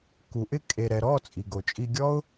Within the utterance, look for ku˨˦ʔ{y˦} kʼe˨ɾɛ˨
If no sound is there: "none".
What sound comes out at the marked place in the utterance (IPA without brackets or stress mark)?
ɪ˦